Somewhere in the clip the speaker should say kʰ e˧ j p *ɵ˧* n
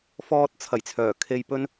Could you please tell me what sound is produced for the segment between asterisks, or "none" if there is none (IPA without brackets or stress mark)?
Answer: ɵ˥